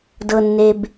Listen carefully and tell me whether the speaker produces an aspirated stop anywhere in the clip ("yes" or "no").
no